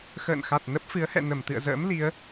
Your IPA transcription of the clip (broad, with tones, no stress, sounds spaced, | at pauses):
x ə̰ː˧˨ n x a˨˩ t̚ n ə˦˥ p̚ f ɨ˨˦ ə̯ h ɛ̰˧˨ n ə˧˩ m t̪ ɨ̰˧˨ ə̯ z ə̰ː˧˥ m l i˨˦ ə̯